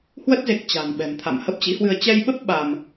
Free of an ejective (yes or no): yes